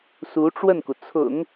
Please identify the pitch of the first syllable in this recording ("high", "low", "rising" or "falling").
rising